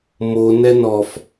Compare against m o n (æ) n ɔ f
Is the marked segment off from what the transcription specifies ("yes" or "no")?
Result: yes